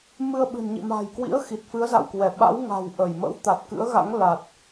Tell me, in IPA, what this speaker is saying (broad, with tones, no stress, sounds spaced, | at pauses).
m ɨ˧ ə̯ ɓ ɨ̤˨˩ n ɲ ḭ˧˨ m a̤ː˨˩ j k w ḭ˧˥ ə̯ x i˨˩ t̚ f ɨ˨˦ ə̯ z a̰˧˨ w k w ɛ˧˩ ɓ a̰˧˥ w ŋ a̤˨˩ w ʔ ə˧˩ j m ə̰˧˥ w t̪ a˨˩ t̚ k ɨ̰˧˥ ə̯ ɣ a̰˧˥ ŋ l a˨˩ t̚